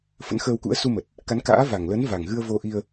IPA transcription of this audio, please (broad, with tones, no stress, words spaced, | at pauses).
fə̰˧˥nxəː˧wkṵ˧˥ə̯ su˧mə˨˩t̚ | ka˨˦nka̰ː˧˥va˨˩ŋlə˨˦n va˨˩ŋɣɨ˧ə̯vo˧ ʔi˧ə̯